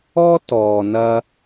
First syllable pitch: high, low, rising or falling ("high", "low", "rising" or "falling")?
high